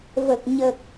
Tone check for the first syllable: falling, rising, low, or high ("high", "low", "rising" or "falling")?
low